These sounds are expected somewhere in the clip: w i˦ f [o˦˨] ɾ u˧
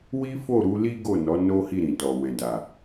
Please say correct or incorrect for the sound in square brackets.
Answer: correct